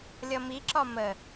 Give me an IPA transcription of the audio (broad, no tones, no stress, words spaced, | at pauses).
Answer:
lʲʌmiǁɒ mə